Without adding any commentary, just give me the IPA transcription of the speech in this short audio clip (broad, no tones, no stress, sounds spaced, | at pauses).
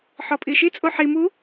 ħ ɔ pʼ i ʃ i t͡sʼ o ħ i m u